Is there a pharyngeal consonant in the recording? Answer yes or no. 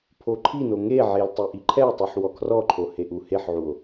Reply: yes